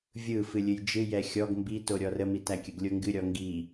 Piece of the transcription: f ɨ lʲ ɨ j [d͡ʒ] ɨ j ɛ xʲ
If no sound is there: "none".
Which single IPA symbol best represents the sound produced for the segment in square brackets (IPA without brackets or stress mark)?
d͡ʒ